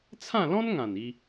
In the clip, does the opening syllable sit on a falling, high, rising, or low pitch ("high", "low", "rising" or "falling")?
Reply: falling